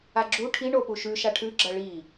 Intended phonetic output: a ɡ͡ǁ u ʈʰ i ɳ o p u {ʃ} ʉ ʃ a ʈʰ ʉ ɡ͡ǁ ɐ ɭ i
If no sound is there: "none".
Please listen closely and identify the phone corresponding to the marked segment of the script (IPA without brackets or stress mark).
ʃ